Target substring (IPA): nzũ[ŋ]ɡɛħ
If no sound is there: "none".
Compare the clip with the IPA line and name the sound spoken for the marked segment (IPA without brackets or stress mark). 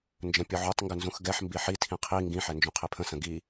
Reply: x